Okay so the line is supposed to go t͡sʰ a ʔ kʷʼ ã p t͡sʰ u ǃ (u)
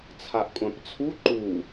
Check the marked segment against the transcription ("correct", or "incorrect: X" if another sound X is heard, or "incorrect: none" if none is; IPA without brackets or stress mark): correct